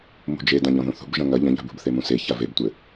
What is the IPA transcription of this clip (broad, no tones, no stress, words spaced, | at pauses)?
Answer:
mṳd͡ʒe dãʎɔ̃ðũθṳb ʒɐ̃ŋɐ ʎɐ̃ʎa̤bṳbθe mũse çavebtʷɘ